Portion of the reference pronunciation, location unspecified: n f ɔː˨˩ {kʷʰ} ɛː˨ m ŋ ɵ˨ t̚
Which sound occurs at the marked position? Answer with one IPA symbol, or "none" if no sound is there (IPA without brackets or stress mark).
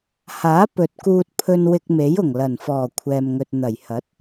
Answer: kʷʰ